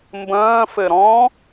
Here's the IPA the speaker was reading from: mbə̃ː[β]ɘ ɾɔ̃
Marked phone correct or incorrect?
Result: incorrect: f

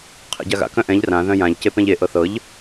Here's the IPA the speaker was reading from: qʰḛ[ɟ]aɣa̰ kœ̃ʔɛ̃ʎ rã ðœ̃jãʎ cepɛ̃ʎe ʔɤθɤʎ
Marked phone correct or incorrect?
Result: correct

